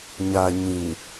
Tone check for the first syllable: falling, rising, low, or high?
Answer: low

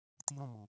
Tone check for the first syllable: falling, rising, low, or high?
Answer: high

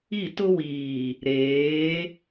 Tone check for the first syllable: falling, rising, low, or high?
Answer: falling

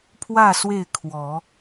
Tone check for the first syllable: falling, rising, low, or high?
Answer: falling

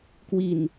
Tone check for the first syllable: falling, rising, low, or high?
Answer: low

